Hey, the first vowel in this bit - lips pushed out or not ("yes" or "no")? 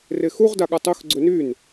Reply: no